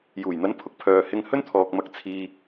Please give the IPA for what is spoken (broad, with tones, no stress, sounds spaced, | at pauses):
j uː˨˩ j n̪ ɐ˨˥ n pʰ ʊ˨ k̚ pʰ œː˨ h ɪ˧ ŋ h ɵ˥ n t̪ʰ ɔː˨ k̚ m ɐ˧ k̚ t͡sʰ iː˧